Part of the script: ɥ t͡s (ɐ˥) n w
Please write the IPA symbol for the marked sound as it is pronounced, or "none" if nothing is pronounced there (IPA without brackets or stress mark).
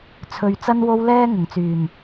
ɐ˧